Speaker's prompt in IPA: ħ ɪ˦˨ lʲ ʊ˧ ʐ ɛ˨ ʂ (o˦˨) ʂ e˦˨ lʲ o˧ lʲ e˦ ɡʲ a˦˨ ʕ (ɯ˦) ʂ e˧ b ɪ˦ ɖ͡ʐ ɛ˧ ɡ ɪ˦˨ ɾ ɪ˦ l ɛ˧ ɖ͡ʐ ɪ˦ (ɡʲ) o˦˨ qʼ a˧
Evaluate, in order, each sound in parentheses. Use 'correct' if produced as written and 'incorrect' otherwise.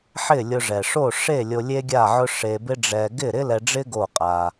correct, incorrect: ʊ˦, incorrect: ɡ

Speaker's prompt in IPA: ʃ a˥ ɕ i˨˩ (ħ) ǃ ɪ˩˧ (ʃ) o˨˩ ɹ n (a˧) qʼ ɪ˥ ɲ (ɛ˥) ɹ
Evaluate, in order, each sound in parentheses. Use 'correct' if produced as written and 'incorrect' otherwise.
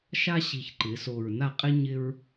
incorrect: ç, incorrect: s, incorrect: a˥˩, incorrect: ɪ˥

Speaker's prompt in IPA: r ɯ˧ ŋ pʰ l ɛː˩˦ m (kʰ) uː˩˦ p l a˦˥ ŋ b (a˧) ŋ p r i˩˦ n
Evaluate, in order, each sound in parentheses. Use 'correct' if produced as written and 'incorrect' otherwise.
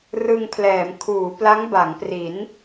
correct, incorrect: a˩˦

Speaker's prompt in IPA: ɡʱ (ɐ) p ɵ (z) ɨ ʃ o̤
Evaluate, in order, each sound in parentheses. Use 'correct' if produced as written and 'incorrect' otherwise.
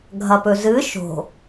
correct, correct

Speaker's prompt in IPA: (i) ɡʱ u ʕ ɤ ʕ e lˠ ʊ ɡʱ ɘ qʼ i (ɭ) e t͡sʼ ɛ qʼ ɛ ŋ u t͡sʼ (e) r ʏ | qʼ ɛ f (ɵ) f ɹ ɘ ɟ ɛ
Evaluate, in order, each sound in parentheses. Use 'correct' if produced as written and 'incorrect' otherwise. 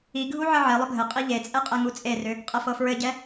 correct, incorrect: ʎ, correct, incorrect: ɤ

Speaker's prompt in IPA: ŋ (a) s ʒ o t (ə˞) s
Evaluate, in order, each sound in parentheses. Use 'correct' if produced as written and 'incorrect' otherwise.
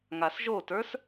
correct, correct

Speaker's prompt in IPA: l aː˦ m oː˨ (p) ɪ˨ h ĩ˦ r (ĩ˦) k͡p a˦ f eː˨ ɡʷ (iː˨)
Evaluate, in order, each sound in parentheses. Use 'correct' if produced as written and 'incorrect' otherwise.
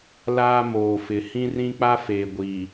incorrect: f, correct, correct

